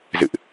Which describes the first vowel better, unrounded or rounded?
unrounded